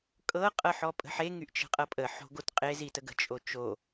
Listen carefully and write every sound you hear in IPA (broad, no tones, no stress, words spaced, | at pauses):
kʼɤ qʼɤħɔpʼə̤ħe ŋyʔt͡ʃə̤qʼɤpʼə ħo̤ɡotqʼe zitəɡə̤ t͡ʃʼot͡ʃo